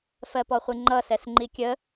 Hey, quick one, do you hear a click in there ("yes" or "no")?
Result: yes